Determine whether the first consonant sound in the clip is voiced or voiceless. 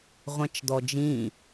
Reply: voiced